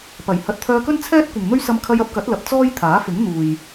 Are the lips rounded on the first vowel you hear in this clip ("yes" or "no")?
no